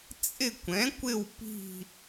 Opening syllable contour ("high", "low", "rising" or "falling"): falling